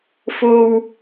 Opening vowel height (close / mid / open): mid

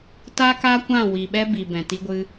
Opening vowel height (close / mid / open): open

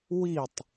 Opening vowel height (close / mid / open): close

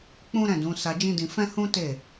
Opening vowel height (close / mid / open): close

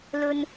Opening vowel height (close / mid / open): mid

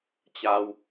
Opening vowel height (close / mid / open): open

